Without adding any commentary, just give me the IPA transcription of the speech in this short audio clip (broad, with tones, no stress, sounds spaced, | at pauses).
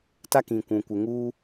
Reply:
t a˦ k ĩ˨ kʷ ũ˨ kʷ ɪ˨ ŋ uː˦